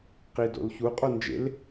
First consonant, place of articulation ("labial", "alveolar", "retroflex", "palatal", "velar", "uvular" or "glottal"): uvular